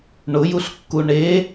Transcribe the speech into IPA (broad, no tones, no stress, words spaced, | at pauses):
ɳʊjuɬkːu ɳe